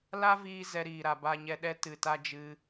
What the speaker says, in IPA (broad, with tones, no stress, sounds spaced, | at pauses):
l a˦ v iː˧ z ɛ˧ ɾ iː˨ ɾ a˨ b a˨ ɲ ɛ˨ ɗ ɛ˧ t ɨ˨ t a˧ d͡ʒ ɨ˧